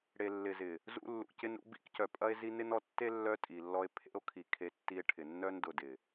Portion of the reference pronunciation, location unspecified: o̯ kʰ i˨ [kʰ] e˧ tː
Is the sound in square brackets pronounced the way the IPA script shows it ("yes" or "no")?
yes